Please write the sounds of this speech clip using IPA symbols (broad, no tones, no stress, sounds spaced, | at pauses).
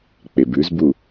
k͡p e b ʉ z b u